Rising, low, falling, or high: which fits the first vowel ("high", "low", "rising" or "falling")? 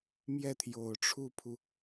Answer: falling